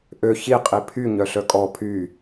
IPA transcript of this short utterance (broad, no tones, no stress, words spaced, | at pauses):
ʔø çiqʼi pʰy ɲœɬœkʼɔ pʰy